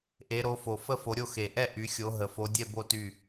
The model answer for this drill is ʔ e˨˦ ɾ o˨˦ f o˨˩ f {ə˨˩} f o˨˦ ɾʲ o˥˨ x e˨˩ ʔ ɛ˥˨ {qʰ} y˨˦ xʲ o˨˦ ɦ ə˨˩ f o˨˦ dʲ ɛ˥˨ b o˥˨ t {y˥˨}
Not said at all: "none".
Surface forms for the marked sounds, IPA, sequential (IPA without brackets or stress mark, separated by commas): ə˥˨, ʔ, y˥˨